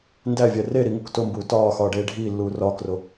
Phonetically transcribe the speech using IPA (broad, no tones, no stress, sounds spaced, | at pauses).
n d æ vʲ æ r e ɾ i ŋ u k t o m b uː t ɒː x ɒː ɖ eː ɖʱ iː lː uː r ɒː k r o